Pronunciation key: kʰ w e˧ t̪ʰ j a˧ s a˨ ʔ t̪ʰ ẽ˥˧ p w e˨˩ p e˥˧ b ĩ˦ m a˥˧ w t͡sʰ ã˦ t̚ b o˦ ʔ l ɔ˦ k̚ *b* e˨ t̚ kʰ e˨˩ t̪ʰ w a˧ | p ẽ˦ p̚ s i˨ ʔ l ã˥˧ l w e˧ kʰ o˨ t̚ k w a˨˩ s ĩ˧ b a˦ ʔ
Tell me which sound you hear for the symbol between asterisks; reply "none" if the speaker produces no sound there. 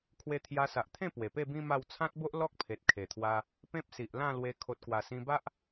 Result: pʰ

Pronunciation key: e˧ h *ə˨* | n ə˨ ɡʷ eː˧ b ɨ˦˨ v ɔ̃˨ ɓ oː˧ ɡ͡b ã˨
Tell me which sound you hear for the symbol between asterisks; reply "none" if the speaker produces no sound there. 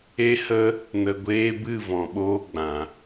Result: ə˧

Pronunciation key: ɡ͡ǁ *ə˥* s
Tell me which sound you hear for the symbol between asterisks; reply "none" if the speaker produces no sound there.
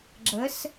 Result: ə˧˥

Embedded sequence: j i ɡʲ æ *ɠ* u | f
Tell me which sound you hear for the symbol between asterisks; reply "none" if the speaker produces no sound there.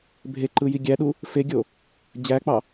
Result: ɗ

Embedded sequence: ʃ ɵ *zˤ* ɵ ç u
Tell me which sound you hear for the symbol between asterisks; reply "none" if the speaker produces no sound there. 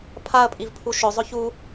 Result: zˤ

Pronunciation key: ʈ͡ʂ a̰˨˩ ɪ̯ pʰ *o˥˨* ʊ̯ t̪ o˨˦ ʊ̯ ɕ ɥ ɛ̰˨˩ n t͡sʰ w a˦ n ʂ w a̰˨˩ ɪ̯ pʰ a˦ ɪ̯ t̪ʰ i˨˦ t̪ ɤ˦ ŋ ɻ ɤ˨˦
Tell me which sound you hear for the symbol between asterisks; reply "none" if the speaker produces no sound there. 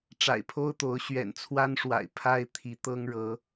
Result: o˦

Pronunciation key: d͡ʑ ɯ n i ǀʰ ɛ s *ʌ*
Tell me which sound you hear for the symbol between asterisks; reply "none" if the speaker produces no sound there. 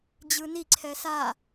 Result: a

